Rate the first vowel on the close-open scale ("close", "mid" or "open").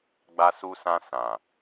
open